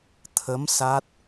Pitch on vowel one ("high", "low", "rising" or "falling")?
rising